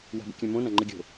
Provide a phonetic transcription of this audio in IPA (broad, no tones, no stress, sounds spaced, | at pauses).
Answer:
w a̤ b ə̰ kʲ ã m õ n ã ŋ͡ǃ ɘ ɡʲ o̤